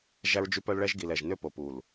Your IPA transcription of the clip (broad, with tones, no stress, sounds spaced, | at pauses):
ʒ æ˦ ɹ d͡ʒ y˦ p œ˦ l ɭ ɛ˦ ʒ ɡ i˨ l ɛ˨ ʒ n ø˦ p o˨ p u˨ l